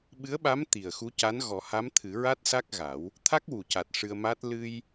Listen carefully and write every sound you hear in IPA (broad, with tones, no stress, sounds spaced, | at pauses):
ɓ ɨ˧˥ ə̯ ɓ a˧˥ m t̪ i˨˩ ə̯ x u˧˥ c a˧˥ n ɣ ɔ˨˩˦ h a˧˥ m t̪ʰ ɨ˨˩˦ ɹ a˦˥ t̚ s a˦˥ k̚ ɣ a˨˩˦ w | t̪ʰ a˦˥ k̚ w u˨˩ c a˨˩ t̚ ʂ ɨ˧ ə̯ m a˦˥ t̚ l ɨ˧ j